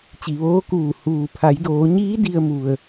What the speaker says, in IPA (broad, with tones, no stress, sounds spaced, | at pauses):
t͡ɕ i˩ ʋ oː˧˥ k uː˧˩ h uː˩ pʰ a˩˧ j d oː˩˧ ɲ iː˧˥ d i˧ ə̯ m u˩ ə̯